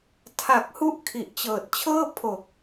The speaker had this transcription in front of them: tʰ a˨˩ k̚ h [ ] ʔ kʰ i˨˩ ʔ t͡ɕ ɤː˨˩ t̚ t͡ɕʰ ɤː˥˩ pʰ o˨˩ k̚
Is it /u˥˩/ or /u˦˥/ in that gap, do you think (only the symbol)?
u˥˩